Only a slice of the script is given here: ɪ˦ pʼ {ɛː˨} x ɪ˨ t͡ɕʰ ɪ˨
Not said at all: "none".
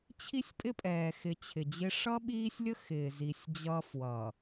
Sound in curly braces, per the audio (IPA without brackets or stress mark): ɛː˨